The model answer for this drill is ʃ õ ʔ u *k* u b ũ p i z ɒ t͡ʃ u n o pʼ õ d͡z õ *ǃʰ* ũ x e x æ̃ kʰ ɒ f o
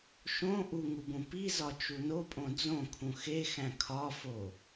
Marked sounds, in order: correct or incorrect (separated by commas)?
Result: incorrect, incorrect